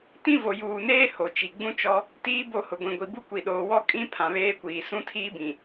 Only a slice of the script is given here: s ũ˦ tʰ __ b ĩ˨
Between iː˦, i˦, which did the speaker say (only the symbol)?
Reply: iː˦